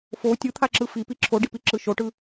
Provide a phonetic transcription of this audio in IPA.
fo tʲɯt̪ʰaǁɯ fipi ǁʰoɖipiǁɯ ʃoʈɯ

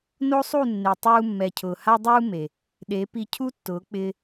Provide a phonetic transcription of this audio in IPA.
no˦sˤu˦˨ nːe˨tˤuː˧ mːɛ˨cʰʊː˨ha˦ dˤuː˦ me˨ | ɗe˨˦ pi˧cʰu˦tːʊː˨˦k͡pɪː˧

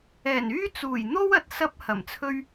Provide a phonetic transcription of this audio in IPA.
ɛː˨˩nyː˥t͡suː˨˩j n̪o˥wɐ˨t̚ sɐ˧p̚ hɐ˨˩mt͡sʰɵ˥ɥ

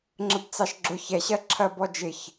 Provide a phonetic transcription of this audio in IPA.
ŋ͡ǁəbt͡sɑʃɡ͡ǁʊ çɛɕɜǁʰɜbɔ d͡ʒɪç

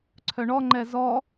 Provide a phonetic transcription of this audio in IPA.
ǀʰœɳɔ ŋ͡ǃɛzɔ

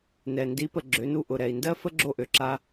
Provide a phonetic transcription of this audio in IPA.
nɛ˨ ndi˨˦pə˨ ɡ͡ǁø˨˦nu˧ ʔʊ˨ɾɛ˨i̯ndɜ˦ fə˦ɡ͡ǁo˧ʔø˨ǁa˧

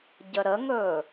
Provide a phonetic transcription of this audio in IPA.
ɟəɾəŋɵː

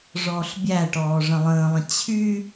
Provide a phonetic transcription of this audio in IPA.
ʐɔːɬbʲæʈɔː ʐə̃lˠə̃ːlˠə̃ t͡ɕʰy

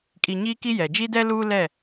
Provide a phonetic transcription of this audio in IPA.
kʼi˨ ɲiː˦ki˦jɛ˨ d͡ʒi˦dɛ˦ luː˦lɛ˦˨

